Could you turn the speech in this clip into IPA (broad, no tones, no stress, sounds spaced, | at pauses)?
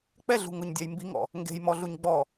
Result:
k͡p ɛ ɮ ṳ ŋ ʊ ɲ dʲ a j m b i ŋ ɔ̰ | ŋ ɡ e̤ j m ɔ ɮ u ɲ ɡ͡b ɔ